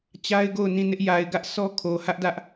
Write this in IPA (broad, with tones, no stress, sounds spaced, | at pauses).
t͡ɕ a˦ ɪ̯ ɡ o˦˨ ʊ̯ n ĩ˦˨ n ɪ˦ ʔ j a˨ ɪ̯ ɡ ä˦ ʔ sʰ ɔ˦ kʰ o˨ h ä˦ ʔ d ä˦ ʔ